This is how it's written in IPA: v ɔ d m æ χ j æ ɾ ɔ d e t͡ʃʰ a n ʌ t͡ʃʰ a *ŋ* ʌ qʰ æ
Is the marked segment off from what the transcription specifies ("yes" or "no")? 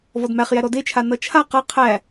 yes